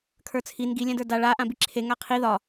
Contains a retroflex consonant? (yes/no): yes